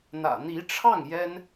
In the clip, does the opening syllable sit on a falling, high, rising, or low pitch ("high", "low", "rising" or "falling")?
low